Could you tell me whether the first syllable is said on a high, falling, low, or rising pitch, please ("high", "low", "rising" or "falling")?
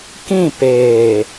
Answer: falling